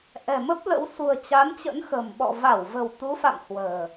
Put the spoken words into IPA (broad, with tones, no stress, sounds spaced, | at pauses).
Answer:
ʔ ɛ̤˨˩ m ə˦˥ p̚ l ə̰˧˥ w s ṳ˨˩ ə̯ t͡ɕ a˨˦ n t͡ɕ ə̰˧˥ n x ə̤˨˩ m ɓ ɔ̰˧˨ v a˧˩ w v ə̤˨˩ w t̪ u˨˦ f a̰˧˨ m h w ə̤ː˨˩